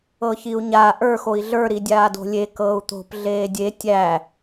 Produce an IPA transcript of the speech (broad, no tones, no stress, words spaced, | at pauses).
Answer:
ɤçiu̯ɲa ʔə˞ xoi̯ɮə˞ ɾidʲaːdo̤lʲe kɤːu̯t̪o̤p ɮeːdʲe tʲæ